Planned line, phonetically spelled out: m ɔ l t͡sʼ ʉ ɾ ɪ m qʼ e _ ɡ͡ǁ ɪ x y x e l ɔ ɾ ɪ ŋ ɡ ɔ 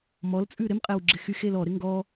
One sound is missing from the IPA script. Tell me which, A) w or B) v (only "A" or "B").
A